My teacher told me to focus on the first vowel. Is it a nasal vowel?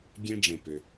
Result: yes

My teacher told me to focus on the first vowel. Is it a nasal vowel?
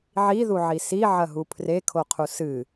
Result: no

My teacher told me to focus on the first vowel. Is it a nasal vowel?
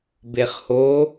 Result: no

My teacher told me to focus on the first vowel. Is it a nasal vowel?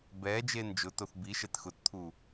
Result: no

